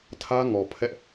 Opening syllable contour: high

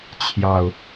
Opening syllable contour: low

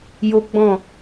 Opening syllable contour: high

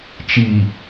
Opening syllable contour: low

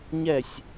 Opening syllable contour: falling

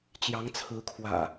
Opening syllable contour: rising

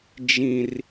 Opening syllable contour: high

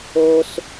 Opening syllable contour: high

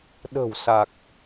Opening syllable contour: low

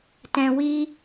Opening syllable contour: high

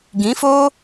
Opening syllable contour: rising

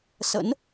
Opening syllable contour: rising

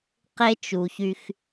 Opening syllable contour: high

